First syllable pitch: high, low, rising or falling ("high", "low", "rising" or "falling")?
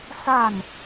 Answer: falling